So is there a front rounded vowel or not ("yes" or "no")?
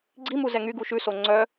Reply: yes